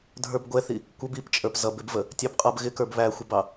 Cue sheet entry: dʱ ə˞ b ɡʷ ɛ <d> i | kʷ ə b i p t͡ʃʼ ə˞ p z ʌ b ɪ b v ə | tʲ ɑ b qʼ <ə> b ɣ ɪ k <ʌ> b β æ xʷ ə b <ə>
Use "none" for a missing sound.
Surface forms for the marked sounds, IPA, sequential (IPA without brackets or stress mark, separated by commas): θ, ʌ, ə˞, ɑ